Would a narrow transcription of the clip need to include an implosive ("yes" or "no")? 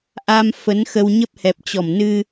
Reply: no